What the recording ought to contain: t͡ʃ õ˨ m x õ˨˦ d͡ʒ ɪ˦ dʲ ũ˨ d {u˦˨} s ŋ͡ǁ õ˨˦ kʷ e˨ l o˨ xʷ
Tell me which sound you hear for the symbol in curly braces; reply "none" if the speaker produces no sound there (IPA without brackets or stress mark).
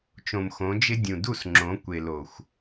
u˦˨